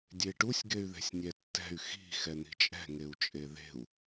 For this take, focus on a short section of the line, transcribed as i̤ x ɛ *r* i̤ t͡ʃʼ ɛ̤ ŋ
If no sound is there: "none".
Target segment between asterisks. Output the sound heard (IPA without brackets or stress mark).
n̪